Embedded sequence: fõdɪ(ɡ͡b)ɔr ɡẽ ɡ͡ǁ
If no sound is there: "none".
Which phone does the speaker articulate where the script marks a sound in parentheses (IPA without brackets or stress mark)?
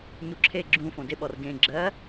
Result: ɓ